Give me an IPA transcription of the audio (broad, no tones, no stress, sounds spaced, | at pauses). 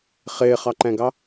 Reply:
χ ɪː χ ɑ ǃ ɛ̃ ɡ ɑ